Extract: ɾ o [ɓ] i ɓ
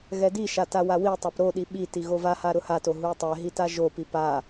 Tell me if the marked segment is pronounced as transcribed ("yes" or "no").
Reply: no